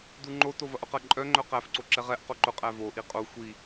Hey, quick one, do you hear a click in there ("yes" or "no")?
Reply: yes